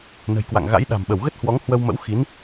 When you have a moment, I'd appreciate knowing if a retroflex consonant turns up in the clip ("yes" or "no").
no